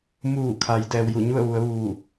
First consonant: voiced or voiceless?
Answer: voiced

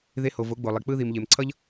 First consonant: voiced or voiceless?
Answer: voiced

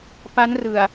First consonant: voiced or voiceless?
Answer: voiceless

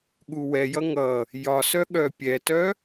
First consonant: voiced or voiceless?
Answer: voiced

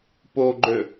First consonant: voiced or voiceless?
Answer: voiceless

